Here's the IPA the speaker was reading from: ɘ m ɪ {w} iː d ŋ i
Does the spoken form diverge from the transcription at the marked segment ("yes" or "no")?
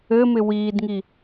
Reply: no